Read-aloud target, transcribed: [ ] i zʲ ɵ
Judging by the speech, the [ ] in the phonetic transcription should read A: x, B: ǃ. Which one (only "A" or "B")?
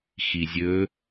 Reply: A